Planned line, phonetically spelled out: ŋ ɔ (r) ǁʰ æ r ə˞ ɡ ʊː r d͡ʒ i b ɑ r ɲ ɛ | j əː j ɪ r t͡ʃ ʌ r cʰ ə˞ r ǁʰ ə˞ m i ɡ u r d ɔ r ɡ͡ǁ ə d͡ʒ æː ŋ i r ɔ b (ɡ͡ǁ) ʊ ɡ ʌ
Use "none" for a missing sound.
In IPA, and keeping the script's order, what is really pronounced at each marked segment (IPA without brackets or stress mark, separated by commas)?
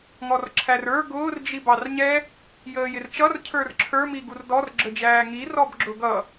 r, ɡ͡ǁ